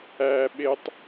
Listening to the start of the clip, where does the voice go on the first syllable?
low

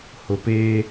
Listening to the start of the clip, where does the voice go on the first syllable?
low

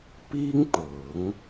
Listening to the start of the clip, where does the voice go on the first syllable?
high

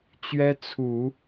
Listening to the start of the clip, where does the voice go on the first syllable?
high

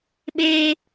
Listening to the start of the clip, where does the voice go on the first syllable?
high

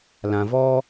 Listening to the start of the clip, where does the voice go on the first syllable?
low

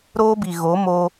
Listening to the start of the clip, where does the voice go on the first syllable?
high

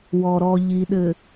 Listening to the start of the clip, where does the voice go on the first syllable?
low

